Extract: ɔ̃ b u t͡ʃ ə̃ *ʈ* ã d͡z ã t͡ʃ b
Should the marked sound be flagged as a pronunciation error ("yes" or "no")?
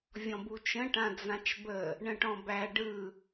no